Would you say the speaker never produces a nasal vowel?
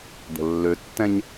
no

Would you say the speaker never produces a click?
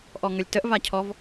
yes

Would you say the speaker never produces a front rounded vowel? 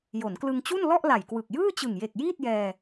yes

